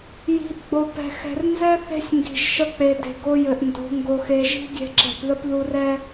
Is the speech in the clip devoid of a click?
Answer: no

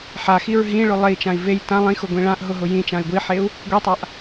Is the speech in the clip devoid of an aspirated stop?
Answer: yes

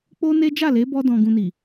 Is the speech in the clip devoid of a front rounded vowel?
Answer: yes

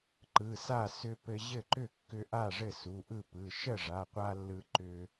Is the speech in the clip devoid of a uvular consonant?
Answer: no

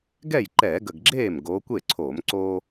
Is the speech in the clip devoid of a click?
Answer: no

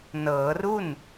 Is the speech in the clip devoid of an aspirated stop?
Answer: yes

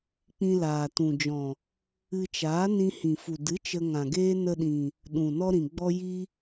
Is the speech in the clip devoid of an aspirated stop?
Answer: yes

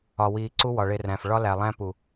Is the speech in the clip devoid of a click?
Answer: no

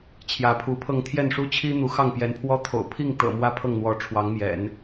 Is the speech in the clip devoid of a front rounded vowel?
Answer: yes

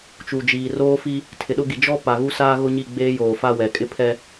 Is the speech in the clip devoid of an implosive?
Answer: no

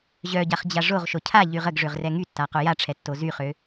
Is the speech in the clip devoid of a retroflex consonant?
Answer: no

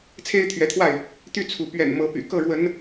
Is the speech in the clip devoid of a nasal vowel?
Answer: yes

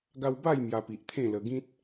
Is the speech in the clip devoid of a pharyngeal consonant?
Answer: yes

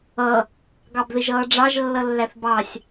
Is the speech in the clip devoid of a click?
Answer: yes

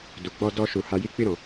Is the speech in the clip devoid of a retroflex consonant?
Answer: yes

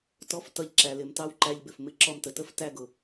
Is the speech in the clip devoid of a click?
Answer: no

